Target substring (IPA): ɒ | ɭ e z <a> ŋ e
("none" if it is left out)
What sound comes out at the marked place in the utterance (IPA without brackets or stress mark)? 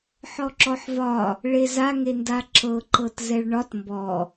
a